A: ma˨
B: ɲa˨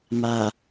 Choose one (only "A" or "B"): A